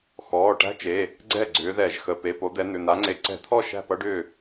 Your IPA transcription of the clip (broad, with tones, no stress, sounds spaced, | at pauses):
x ɔː˩˧˩ ʈ æ̤˦˥ t͡ʃ e˩˧˩ | ɡ͡ǀ ɛ˥˩ ɡ͡ǀ ʏː˨˦ ð ɛ˧˩˧ ʒ x ə˩˧˩ p e˩˧˩ p o˨˦ d̪ ɛ˨˦ n̪ ʏ˩˧˩ n̪ a˨˦ ŋ͡ǀ e˨˦ ǀ ɛ̤˧˩˧ t̪ʰ ɔ˥˩ ʃ æ̤˥˩ p ʌ˦˥ ɖ ʏː˥˩